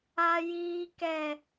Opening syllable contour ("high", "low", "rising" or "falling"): high